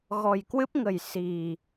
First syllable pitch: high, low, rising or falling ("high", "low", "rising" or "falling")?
low